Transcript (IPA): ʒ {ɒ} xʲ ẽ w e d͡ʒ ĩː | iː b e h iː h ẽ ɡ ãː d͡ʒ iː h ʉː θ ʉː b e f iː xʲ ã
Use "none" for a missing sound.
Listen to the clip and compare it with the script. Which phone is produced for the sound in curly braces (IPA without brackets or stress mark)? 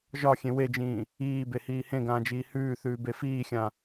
ɒ